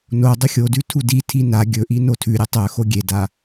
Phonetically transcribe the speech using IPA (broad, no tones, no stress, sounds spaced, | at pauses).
n o dˤ ɵ xʲ o d ʉ tʰ u d i tʰ i n a ɡʲ ɵ ʔ i n o tʰ ʉ ɾʲ ɨ tˤ ɵ x o ɡʲ e d a